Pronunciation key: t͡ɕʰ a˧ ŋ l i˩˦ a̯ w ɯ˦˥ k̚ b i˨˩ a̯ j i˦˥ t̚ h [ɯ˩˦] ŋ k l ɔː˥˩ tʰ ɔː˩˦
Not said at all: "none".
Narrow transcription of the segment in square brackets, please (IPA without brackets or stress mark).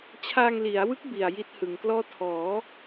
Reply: ɯ˩˦